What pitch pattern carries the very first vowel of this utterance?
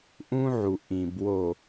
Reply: high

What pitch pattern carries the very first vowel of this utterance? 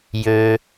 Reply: low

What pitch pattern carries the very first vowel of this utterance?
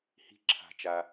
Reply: rising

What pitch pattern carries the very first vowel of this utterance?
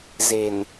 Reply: low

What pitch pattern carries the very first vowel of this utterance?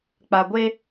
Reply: low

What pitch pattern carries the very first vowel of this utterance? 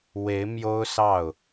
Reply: rising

